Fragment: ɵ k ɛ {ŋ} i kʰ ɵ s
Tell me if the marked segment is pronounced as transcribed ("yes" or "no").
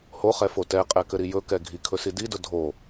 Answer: no